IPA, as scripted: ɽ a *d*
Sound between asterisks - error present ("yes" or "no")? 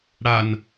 yes